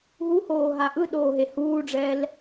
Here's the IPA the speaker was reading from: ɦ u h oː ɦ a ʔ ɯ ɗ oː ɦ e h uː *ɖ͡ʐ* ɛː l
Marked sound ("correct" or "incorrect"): correct